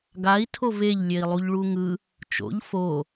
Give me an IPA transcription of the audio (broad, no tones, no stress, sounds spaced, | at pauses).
ɡ a i̯ tʰ o v e ʎ lʲ e i̯ lˠ u ʎ ɭ u ŋ ɯ | t͡ʃ o̰ ʎ f o